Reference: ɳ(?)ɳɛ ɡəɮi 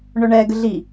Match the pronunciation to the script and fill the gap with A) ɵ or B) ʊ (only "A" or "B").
A